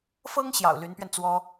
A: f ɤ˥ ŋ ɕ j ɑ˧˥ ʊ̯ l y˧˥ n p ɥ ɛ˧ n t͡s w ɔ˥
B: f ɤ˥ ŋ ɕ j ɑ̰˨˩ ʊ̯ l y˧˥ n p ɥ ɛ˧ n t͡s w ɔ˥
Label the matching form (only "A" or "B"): B